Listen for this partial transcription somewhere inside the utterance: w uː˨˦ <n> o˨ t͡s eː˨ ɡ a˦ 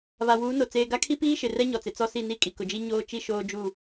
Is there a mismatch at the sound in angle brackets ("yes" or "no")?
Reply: no